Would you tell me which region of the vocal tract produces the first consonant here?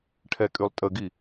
retroflex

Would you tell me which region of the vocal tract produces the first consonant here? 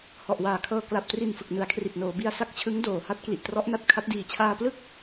throat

